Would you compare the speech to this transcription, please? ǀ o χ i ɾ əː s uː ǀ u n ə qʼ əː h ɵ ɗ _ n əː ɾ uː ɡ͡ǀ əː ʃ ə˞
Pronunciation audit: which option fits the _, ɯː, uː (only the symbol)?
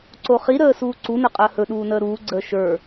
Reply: uː